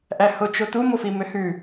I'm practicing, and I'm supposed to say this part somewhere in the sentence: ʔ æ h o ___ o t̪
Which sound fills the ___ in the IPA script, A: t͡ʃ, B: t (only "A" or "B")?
A